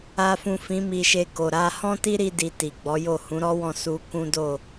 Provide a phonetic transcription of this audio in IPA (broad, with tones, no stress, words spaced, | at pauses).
a˨fũ˨ fĩ˨˦mi˧ʃe˧ko˨ ɾa˧ hɔ̃˦ti˦ɾi˧di˨ ti˨ɡ͡bɔ˨˦jo˦˨ hũ˨˦ɾɔ˦wɔ̃˦˨ su˧ kũ˦do˦˨